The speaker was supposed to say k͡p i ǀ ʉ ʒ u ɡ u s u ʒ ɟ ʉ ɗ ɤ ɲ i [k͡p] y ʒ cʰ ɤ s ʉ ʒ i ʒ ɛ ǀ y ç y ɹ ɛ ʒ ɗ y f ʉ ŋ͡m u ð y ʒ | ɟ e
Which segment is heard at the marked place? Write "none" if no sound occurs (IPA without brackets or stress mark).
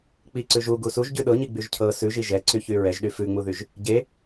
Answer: ɡ͡b